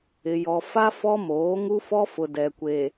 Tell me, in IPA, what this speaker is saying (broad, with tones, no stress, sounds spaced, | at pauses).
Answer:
ɪ˨ j ɔ˨ f a˦ f ɔ˦ m oː˨˦ ŋ u˦ f ɔ˦ f ʊ˨ d ɛ˨ kʷ e˨